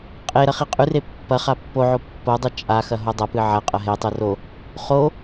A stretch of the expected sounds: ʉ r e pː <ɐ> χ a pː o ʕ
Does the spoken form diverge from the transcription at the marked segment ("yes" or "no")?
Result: no